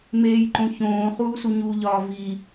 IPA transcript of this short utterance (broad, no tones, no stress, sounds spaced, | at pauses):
m eː j ǃ õ ç õː χ uː s u ɲ u ʎ ɒː v i